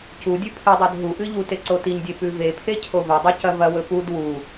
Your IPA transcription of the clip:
c u dʲ ʉ pʰ ɨ dˤ o d ɦ u ʔ ɨ ʎ u t e ǀ o t i ɲ dʲ e p ʉ v e pʰ e cʰ o v ɐ dˤ ɨ c ɐ v ɐ w ɵ p u d w u

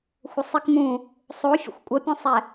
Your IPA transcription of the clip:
xʷ ə sˤ i k m ũ | sˤ o fʲ ə̰ xʷ kʷʼ ə pʲ ũ sˤ ɛ

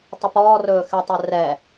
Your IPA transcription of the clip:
tˤ ɵ p ɔː r ɵː x ɛ tˤ ɛ r ɛ

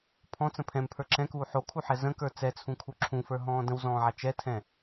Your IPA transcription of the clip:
pʰ ɔ̃ t͡s ə̃ pʰ ɛ̃ m pʰ ə˞ ǁ ɛ̃ k uː ħ o kʰ u ħ ɛ z ə̃ k ə˞ t͡s ɛ t͡sʰ ũ kʰ u ǁʰ ũ f ə˞ ɦ ɔ̃ː d ə̃ w z ɔ̃ː ʕ a t͡ʃ ɛ tʰ ɛ̃

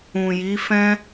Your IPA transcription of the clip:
ũ˨ j i˨˦ f ɛ̃˦

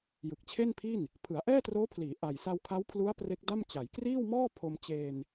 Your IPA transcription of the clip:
j ɯ˨˩ k̚ t͡ɕʰ e˥˩ n pʰ i˥˩ n | pʰ ɯ˩˦ a̯ ʔ ɛː˥˩ t r oː˦˥ pʰ l iː˩˦ ʔ a˨˩ j s a˧ w kʰ a˦˥ w pʰ l u˦˥ a̯ p r e˦˥ k̚ d a˥˩ m t͡ɕ a˩˦ j k r iː˥˩ w m ɔː˥˩ pʰ o˧ m t͡ɕ eː˧ n

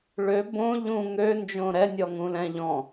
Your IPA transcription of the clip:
ɭ ø b õ ʎ ũ ŋ ø n d͡ʒ õ ɾ ɛ nʲ ɔ ŋ ũ l ɛ̃ ʎ ɔ̃

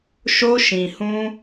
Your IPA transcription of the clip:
ʃ o˧ ʃ ĩ˨ h ũ˧

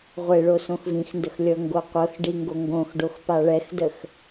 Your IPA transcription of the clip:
ʁʷ e ɭ o s õ x v ĩ x n d ə x lʲ ɤ ŋ ɡ o qʷ ɤ x ɖ i ŋ ɡ o ŋ ɡ õ x ɖ o x p a ɭ ɛ x d ə x

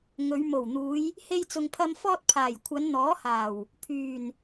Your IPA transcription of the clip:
ŋ ɵ˨˧ ɥ m o˨˩ w n̪ uː˨˧ j | h e˧ j t͡s ʊ˨ ŋ pʰ ɐ˧ m f ɔː˧ t̚ pʰ aː˨˩ j kʷʰ ɐ˨˧ n n̪ ɔː˨˥ h aː˨˩ w | pʰ yː˨˩ n

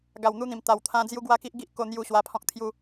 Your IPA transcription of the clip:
ɡ a˨˩ w n̪ u˧ n̪ ĩ˨˩ m t̪ a˨˩ w t̪ʰ ã˧ d͡z j u˦ ɡ w a˦ k i˦ ʔ ɡ i˦ ʔ k o˧ n̪ j u˧ ɕ w a˧ pʰ ɔ̃˦ k̚ t̪ʰ j u˦

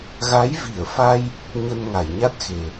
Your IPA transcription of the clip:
ɣ a˨˦ j v i˧˩ ə̯ f a˧ j | ɲ ə˧ n ŋ a˧˩ j ɲ a˦˥ t̚ x e˨˩

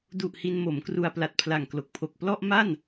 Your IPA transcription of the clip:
d u˨˩ ʔ h i˧ n m o˩˦ m k r u˧ a̯ p l a˨˩ t̚ pʰ l a˨˩ ŋ k l o˨˩ k̚ pʰ o˨˩ k̚ p l ɔ˥˩ ʔ m a˥˩ n

